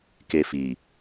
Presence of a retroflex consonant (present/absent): absent